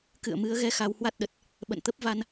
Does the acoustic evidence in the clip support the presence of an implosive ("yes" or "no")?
yes